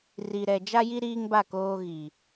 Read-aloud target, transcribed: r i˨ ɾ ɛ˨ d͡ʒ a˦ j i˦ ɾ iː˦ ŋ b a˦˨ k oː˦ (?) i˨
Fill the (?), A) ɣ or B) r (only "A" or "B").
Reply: A